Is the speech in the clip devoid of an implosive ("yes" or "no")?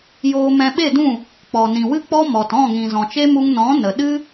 no